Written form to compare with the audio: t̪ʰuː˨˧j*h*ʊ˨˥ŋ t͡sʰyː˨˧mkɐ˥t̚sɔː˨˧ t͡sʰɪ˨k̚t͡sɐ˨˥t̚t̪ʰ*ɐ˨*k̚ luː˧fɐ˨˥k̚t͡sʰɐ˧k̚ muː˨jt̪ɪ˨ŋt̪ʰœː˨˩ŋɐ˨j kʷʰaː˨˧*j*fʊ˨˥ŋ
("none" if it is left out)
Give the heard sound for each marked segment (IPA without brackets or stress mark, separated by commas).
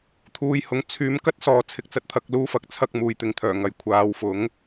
h, ɐ˧, w